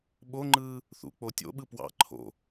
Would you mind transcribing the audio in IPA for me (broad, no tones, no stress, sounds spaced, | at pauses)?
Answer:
ɓ o ŋ͡ǃ ɯː | θ ṵ k͡p o tʲ o̰ ɓ ɯ p w ɑ̰ ǃʰ o̰